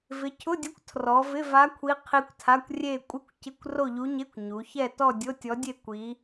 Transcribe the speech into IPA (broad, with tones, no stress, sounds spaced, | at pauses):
v ɪ˩˧ cʰ ʊ˧˥˧ dʲ ʊ˧˥ kʷ tʰ r ɔ˩˧ v ɪ˧˥˧ v a˧˥ kʷʰ i˧˥ qʰ i˧˥ kʷ tʰ a˧˥˧ kʷ rʲ e˥˧ kʷʼ ɪ˥˧ kʷ c ɪ˧˥˧ kʷ r o˥˧ ʎ u˧˥ ɲ e˧˥˧ kʷ ɲ u˩˧ ç ɛ˥˧ t ɔ˥˧ dʲ o˧˥˧ tʲ ɔ˧˥ dʲ e˥˧ kʷ i˧˥